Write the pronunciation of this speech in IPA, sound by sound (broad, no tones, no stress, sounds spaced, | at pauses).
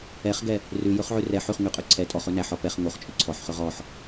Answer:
ɛ χ ɡ ɛ | r ʉ j ɵ χ ʕ ʉ r ɛ ħ ʉ χ ŋ ʉ qʼ ɵ ǀʰ ɛ tʼ ɔ χ ɵ n æ ħ ɔ p ɛ χ ŋ o χ t͡ʃʼ ɵ ǀʰ ɔ ħ χ ɵ ʁ ɔ ħ